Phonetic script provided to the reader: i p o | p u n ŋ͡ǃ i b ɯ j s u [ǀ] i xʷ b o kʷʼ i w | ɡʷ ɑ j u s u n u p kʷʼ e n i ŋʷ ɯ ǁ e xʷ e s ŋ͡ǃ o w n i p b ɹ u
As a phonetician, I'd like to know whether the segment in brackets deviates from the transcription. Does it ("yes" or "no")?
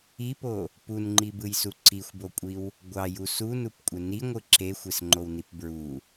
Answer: no